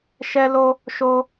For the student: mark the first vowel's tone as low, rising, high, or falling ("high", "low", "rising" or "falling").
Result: high